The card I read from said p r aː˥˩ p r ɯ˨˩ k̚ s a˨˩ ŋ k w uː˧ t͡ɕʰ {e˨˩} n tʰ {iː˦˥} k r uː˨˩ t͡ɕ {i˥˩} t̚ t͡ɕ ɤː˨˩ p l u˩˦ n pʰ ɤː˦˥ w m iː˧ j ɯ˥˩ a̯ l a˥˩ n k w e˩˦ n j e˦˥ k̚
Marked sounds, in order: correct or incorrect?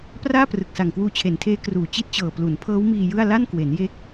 correct, incorrect, incorrect

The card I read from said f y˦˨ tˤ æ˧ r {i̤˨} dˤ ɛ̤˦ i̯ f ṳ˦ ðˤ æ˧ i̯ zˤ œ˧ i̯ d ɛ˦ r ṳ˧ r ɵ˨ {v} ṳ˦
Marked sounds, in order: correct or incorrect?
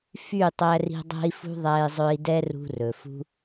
incorrect, incorrect

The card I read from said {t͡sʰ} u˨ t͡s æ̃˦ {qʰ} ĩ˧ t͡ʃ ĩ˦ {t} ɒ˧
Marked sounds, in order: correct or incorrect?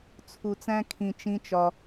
correct, incorrect, incorrect

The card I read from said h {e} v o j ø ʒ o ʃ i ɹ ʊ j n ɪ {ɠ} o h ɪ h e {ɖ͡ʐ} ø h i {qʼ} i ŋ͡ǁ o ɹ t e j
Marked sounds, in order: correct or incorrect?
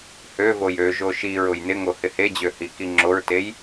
incorrect, incorrect, incorrect, incorrect

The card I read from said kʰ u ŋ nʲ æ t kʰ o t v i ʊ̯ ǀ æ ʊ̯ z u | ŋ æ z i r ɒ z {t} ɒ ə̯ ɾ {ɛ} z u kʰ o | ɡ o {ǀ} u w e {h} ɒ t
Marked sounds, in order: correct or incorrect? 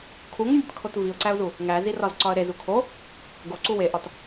incorrect, incorrect, correct, incorrect

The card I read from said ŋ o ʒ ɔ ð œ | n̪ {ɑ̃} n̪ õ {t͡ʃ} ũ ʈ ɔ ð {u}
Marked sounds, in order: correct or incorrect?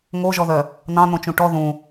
correct, correct, incorrect

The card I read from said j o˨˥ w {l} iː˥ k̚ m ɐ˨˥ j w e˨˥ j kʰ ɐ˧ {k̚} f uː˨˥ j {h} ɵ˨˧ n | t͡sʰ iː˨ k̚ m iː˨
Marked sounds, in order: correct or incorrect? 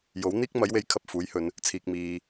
incorrect, incorrect, correct

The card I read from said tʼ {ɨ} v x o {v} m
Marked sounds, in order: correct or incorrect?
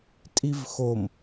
incorrect, incorrect

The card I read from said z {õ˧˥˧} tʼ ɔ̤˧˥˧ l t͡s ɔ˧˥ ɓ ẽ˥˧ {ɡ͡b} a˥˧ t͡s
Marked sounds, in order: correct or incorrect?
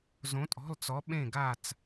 incorrect, incorrect

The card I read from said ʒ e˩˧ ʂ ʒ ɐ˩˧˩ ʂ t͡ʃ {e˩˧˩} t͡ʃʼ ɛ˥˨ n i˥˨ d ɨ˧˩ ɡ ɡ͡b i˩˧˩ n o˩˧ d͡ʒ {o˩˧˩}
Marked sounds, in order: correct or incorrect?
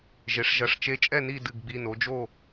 incorrect, incorrect

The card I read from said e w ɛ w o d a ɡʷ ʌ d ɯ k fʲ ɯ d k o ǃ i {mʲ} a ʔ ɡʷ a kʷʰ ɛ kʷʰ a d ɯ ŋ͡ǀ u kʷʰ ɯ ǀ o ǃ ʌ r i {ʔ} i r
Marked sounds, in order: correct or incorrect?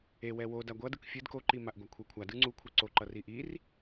incorrect, correct

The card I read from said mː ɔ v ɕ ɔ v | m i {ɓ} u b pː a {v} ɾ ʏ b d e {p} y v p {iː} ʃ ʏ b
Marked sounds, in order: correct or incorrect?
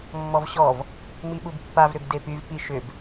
correct, correct, correct, incorrect

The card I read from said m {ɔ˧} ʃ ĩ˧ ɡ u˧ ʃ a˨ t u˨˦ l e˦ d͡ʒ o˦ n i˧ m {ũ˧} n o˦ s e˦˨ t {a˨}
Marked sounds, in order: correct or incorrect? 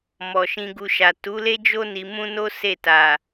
incorrect, incorrect, correct

